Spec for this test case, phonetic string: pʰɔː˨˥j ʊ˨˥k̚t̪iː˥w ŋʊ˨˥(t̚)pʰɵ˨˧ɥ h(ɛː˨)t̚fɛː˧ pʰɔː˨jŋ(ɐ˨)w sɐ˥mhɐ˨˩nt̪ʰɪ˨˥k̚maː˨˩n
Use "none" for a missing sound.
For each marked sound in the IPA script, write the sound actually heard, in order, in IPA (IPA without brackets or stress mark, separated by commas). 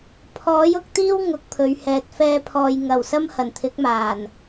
k̚, ɛː˨, ɐ˨˩